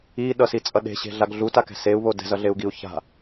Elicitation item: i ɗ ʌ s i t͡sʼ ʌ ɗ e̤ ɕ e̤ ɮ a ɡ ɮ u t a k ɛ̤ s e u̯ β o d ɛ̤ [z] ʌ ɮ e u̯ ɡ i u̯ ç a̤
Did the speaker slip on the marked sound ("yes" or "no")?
no